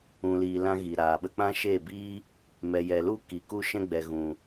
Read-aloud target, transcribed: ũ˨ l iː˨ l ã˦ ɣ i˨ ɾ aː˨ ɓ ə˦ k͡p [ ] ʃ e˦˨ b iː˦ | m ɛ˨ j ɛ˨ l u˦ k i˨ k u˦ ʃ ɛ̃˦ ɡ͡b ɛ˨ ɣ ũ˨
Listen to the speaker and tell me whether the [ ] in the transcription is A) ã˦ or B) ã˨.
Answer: A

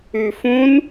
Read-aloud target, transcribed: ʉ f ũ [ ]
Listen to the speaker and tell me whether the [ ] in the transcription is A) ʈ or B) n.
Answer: B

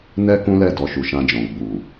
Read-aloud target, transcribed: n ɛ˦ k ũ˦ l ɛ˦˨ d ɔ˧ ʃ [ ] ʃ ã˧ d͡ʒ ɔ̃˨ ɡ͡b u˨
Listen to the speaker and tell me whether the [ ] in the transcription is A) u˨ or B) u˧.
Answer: A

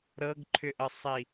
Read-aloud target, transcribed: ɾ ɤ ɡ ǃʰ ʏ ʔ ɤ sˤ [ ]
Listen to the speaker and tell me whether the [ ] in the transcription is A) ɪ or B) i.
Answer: B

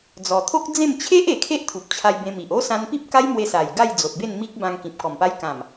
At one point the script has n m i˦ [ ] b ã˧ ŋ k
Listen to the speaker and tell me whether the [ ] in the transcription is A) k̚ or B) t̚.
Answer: A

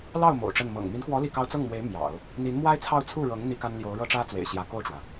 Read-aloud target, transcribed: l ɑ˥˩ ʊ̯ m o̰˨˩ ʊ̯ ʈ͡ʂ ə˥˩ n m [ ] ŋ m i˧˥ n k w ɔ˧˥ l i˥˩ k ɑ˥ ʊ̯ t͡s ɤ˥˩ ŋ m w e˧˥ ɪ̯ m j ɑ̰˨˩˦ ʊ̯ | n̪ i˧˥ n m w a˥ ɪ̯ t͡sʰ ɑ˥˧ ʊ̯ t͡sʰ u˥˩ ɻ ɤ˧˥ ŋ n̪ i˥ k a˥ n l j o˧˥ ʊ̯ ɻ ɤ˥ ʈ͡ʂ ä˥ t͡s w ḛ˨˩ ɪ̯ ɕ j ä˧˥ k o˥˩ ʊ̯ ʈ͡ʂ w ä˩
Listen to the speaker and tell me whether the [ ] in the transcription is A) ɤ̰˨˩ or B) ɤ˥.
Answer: A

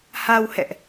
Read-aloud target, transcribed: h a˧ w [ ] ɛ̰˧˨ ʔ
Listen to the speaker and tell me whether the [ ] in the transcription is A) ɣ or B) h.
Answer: B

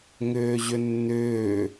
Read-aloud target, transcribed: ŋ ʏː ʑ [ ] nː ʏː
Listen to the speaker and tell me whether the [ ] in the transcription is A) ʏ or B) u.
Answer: A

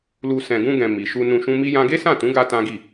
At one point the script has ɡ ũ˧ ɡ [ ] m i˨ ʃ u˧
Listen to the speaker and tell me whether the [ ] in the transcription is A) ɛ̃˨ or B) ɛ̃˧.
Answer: A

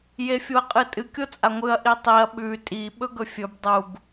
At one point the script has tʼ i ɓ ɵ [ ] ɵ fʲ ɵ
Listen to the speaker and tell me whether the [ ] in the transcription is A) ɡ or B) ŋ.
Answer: A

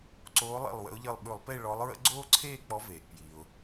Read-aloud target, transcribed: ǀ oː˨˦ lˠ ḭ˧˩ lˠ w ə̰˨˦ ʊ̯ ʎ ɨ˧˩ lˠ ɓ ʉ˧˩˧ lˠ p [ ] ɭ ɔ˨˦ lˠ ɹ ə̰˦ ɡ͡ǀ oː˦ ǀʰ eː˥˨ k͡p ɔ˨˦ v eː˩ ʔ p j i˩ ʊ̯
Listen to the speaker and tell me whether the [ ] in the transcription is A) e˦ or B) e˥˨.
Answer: B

